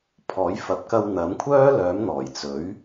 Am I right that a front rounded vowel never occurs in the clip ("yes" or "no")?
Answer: no